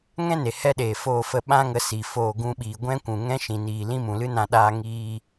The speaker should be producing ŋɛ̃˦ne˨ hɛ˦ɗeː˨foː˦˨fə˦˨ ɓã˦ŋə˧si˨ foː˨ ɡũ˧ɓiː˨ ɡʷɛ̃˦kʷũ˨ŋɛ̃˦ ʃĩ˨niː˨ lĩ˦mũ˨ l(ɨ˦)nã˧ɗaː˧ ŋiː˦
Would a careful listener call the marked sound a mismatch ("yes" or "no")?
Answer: no